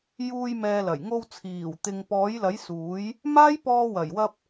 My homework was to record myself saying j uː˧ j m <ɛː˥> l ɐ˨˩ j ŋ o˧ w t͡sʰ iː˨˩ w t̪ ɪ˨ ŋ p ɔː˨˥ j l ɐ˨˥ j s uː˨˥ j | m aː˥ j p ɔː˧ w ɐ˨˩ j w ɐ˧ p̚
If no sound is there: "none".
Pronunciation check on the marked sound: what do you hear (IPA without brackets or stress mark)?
ɛː˨